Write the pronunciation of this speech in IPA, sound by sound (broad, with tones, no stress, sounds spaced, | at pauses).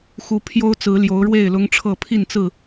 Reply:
x u˨˦ pʰ j o˦ ʊ̯ t͡s ɹ̩˨˦ l j o˨˦ ʊ̯ ɻ w e˥˨ ɪ̯ l ʊ˦ ŋ ʈ͡ʂʰ ɤ˥˨ pʰ i˥˨ n t͡s ɹ̩˥˨